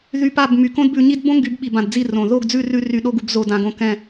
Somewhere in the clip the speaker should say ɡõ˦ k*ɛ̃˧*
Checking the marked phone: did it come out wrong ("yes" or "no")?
yes